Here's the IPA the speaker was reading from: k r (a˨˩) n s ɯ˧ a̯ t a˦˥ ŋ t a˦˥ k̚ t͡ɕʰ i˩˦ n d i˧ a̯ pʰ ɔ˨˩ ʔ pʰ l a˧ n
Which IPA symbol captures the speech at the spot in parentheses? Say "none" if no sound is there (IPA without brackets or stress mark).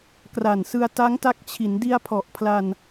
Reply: a˨˩